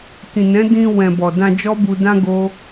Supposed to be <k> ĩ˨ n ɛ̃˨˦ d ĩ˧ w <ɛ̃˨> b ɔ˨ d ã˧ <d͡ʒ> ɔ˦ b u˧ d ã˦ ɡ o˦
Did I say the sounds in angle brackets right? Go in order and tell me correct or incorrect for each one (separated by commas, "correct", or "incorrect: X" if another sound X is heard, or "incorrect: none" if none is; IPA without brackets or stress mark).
correct, correct, correct